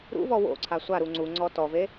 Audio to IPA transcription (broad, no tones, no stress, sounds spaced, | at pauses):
ɾ ṵ v ɔ w o̰ ǀʰ a sʷ a ɾ u ŋ͡ǀ u ŋ͡ǀ ɔ t ɔ v e